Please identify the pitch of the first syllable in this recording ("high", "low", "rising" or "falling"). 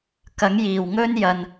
rising